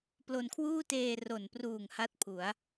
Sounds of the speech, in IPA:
p l o˧ n kʰ w uː˥˩ t eː˧ r o˨˩ n p r uː˨˩ ŋ h a˥˩ t̚ pʰ u˩˦ a̯

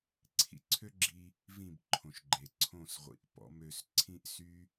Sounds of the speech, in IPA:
ǀʰ ḭ˧ ǀʰ ø˦ ɡ͡ǁ i˧ | v ĩ˦˨ b ǃʰ õ˨ ʃ ɡ͡ǃ e˨ ǀʰ õ˦˨ s ʁʷ ḭ˨ ʔ p ɔ̰˨˦ m ø˧ s ǀʰ ĩ˦ ʔ s y˦

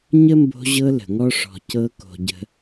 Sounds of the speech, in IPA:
ɲ ə˥ m b o̤˦ ʑ ɤ˦ l ə̤˩ ŋ ɔ˥ ʂ ɔ̤˨ c ɤ˦ k o̤˨ ɟ ə̤˦

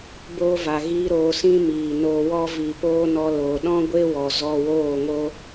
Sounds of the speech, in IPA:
b oː˧ v a˨ ɣ iː˧ ɾ oː˧ s ĩ˦ m iː˨ n oː˧ w ɔ˧ v i˨ p oː˧ n ɔ˧ l oː˨ ɗ ɔ̃˦ ɡʷ e˦ w ɔ˨ z ɔ˧ w oː˦˨ ŋ o˦

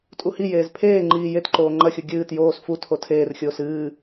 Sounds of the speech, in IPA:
tʼ u h i j eː z pʰ eː ŋ͡ǃ iː j e t ǃ oː ŋ͡ǃ ɐ xʲ u ɡʲ ɨː t j oː s f u tʰ o tʰ eː r xʲ oː s ɨː

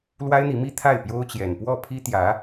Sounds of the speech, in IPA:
l w a˥ ɪ̯ n̪ i˧˥ m i˥ t̪ʰ a˥˩ ɪ̯ p j o˥ ʊ̯ t͡ɕ j ɛ˨˩ n p w ɔ˥˩ pʰ i˥ t̪ j ä˧˥

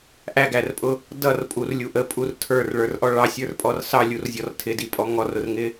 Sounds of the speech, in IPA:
ʔ æ ɡ æ r pʼ ʊ | d ʌ r pʼ u r lʲ u ʔ ə pʼ u r tʰ ə˞ r ɭ ə˞ r ʔ ɔ ɭ ɑ sʲ ə˞ r pʼ ɔ r s ɑ lʲ u r zʲ ɔ r tʰ ɪ d i pʼ ɔ ŋ ɔ r ʊ r ŋ ɪ

